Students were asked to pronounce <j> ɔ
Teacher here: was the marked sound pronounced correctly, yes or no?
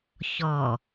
no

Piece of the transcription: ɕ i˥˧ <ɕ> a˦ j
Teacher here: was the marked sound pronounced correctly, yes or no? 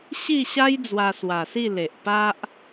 yes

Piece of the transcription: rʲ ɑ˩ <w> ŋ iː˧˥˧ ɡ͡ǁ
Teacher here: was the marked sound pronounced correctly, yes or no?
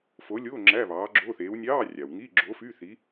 yes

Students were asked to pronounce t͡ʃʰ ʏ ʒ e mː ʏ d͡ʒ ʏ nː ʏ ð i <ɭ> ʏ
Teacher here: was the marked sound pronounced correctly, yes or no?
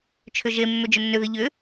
no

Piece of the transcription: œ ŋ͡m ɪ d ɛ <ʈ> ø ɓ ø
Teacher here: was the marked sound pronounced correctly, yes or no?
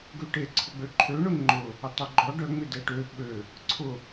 yes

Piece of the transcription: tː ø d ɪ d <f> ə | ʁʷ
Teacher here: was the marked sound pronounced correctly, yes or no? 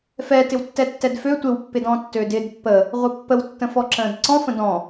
no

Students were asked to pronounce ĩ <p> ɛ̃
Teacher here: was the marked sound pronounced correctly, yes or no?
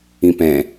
yes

